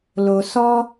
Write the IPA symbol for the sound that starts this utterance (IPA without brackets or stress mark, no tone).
l